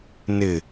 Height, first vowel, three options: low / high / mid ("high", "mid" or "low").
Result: high